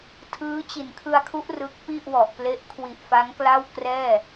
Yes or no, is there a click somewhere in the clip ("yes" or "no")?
no